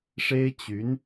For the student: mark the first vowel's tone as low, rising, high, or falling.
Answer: high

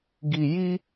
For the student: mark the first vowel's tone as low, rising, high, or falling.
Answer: low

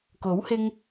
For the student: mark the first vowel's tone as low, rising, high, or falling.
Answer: rising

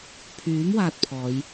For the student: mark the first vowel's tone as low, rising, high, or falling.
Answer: rising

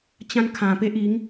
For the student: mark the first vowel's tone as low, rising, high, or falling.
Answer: high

